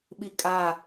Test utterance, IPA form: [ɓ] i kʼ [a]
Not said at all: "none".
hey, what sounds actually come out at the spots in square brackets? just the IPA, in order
ɓ, a

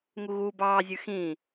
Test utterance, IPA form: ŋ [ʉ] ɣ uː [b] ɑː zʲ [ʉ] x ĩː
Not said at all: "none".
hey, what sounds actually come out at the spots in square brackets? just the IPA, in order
u, b, ʉ

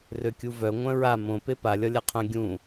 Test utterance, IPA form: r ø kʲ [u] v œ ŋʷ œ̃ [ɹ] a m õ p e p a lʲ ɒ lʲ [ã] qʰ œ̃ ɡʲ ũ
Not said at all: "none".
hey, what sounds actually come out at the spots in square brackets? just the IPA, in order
u, ɹ, a

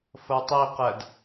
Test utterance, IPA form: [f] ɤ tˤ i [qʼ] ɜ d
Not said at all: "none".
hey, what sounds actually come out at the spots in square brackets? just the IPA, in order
f, q

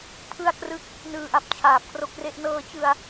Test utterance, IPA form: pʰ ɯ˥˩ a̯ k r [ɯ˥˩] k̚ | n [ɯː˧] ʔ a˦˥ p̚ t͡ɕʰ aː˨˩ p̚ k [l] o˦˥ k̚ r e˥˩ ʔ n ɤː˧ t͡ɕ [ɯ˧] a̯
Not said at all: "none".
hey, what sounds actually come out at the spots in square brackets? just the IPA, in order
ɯ˦˥, ɯː˧, r, ɯ˧

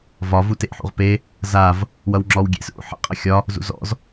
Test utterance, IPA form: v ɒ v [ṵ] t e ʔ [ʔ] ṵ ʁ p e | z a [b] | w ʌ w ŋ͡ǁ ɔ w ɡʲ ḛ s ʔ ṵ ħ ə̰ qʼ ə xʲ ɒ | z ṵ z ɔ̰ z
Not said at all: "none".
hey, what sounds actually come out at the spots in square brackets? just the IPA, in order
u, ħ, v

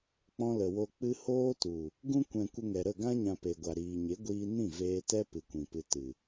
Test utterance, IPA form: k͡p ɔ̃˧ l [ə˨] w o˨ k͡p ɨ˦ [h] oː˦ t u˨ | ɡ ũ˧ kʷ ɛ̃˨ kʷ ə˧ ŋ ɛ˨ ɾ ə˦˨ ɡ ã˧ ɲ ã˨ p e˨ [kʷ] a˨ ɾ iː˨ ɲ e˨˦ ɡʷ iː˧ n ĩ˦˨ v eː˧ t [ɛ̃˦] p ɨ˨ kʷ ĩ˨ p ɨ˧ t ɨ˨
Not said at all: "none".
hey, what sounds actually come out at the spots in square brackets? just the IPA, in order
ə˨, h, ɡʷ, ɛ˦

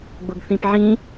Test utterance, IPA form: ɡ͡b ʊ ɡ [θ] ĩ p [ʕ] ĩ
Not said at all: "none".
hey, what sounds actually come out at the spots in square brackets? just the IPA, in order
θ, ʕ

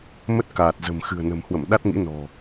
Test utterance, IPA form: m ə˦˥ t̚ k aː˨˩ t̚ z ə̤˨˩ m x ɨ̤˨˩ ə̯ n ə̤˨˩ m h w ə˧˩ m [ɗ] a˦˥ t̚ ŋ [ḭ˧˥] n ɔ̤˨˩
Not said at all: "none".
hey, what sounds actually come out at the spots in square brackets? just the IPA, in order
ɗ, ḭ˧˥

